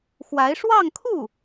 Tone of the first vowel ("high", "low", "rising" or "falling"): rising